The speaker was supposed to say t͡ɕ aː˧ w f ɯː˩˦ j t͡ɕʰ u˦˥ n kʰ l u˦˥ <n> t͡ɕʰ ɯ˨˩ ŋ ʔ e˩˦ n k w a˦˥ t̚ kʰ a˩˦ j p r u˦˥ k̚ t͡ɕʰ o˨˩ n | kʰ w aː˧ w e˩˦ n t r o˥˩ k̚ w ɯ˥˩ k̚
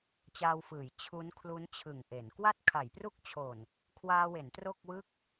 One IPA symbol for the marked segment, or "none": n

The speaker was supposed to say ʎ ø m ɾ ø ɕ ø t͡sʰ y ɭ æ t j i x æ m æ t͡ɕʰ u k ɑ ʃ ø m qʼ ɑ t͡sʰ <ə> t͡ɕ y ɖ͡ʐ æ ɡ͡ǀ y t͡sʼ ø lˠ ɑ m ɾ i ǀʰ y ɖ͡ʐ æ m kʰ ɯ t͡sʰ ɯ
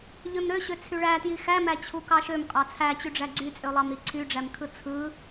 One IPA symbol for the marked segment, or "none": æ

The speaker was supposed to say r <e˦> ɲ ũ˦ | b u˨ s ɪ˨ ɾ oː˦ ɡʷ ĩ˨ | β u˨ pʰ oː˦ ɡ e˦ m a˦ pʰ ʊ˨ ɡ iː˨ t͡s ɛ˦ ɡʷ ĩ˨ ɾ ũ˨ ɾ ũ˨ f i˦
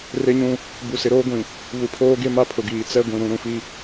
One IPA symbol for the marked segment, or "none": e˦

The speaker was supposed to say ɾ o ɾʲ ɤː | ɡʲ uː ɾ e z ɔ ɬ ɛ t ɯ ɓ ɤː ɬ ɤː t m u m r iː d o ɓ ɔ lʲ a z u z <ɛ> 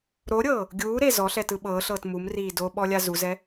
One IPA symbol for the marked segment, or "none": ɛ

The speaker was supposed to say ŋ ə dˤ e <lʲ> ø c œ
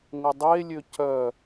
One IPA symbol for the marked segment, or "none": lʲ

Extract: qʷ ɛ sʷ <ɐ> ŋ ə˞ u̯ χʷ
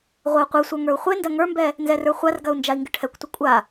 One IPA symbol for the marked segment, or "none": ə˞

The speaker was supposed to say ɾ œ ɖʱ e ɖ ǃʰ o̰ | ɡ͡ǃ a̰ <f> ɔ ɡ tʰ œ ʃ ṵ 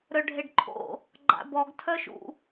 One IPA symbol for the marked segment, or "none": b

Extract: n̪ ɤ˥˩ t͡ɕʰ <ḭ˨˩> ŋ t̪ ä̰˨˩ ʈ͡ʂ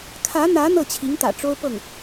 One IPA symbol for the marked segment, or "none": i˧˥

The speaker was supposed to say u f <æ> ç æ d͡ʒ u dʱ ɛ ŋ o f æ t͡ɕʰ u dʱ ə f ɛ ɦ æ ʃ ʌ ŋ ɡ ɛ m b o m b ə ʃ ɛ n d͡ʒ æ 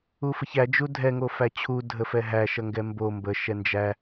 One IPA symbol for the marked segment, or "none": ə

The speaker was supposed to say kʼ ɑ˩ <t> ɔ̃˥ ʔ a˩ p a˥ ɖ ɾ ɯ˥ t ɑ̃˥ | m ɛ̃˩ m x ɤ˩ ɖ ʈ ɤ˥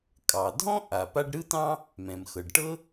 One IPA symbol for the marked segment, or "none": dʱ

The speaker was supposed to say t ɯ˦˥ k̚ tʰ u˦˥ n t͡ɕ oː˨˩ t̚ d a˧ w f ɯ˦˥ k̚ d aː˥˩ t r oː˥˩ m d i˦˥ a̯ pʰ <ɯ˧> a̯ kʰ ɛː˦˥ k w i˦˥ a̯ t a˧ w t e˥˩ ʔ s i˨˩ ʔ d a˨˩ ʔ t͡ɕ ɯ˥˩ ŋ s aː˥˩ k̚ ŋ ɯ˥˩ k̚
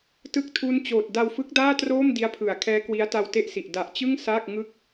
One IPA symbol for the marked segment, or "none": ɯ˩˦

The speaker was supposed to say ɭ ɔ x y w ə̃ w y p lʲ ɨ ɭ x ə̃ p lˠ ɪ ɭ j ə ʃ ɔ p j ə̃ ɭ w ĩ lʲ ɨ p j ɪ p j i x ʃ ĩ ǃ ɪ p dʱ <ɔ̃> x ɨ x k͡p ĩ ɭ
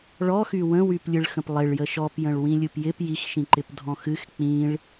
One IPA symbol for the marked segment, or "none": ɔ̃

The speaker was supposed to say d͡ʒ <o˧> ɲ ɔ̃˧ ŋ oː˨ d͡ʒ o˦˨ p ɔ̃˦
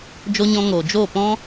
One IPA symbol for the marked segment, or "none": o˧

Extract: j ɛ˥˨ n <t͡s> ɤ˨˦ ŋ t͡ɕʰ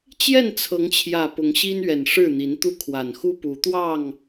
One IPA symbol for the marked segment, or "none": t͡sʰ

